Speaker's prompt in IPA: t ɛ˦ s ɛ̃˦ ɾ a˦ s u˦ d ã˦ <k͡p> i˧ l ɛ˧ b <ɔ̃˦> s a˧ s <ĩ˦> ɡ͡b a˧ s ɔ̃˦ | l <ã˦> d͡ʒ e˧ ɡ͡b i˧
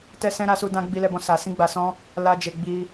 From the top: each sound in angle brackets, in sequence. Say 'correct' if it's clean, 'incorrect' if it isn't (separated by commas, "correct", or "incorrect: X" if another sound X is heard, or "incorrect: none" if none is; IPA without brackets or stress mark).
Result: incorrect: ɡ͡b, incorrect: ɔ̃˧, correct, incorrect: a˦